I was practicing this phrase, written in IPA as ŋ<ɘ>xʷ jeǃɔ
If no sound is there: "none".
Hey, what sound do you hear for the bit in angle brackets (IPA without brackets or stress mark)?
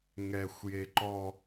ɛ